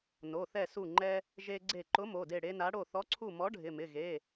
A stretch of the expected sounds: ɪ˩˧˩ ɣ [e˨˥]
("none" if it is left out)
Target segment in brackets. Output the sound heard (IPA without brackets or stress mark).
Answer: e˩˧˩